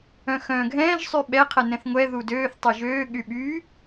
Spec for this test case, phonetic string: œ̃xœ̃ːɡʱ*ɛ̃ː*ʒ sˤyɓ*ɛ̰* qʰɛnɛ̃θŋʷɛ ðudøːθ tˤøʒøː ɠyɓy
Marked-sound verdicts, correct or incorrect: correct, incorrect: ɛ

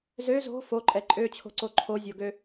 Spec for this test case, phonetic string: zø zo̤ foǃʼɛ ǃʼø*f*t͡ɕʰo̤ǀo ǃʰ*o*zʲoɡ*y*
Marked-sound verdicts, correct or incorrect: incorrect: none, correct, incorrect: ø

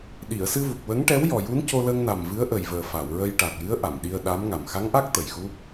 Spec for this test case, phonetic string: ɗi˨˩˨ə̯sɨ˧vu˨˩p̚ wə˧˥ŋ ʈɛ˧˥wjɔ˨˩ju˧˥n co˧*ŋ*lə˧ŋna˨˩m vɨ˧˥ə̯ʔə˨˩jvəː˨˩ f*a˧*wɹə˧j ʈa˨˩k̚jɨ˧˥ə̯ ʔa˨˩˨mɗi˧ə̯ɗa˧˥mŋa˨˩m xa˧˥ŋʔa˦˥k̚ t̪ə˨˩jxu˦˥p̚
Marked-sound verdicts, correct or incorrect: incorrect: none, incorrect: a˨˩˨

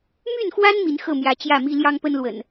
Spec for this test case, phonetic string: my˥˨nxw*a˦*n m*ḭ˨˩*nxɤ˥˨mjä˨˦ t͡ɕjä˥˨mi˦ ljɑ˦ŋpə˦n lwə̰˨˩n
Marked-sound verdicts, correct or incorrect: correct, incorrect: i˨˦

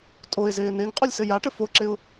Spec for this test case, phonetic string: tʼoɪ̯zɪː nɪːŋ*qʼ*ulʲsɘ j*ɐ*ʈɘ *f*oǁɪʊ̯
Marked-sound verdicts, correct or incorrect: correct, incorrect: a, correct

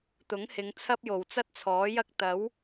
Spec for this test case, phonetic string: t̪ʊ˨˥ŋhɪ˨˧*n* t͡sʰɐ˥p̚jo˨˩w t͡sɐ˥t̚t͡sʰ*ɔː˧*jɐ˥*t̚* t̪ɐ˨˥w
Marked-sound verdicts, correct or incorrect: incorrect: ŋ, incorrect: ɔː˨˥, incorrect: k̚

